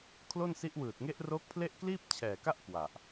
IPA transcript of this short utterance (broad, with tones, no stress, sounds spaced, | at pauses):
kʰ l o˥˩ n s i˦˥ ʔ w ɯː˨˩ t̚ ŋ e˦˥ ʔ r oː˦˥ k̚ pʰ l e˥˩ ʔ k l iː˥˩ p̚ t͡ɕʰ ɛː˨˩ k a˥˩ ʔ k w a˨˩ ʔ